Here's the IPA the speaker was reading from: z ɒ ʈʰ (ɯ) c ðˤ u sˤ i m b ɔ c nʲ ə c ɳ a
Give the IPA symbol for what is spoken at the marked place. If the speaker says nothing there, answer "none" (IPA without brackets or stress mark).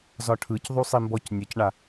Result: ɯ